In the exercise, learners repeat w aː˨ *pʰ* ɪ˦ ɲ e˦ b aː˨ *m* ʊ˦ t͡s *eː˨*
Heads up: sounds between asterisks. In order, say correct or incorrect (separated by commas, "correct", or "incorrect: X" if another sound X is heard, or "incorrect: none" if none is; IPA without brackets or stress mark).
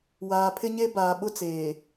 correct, incorrect: ɓ, correct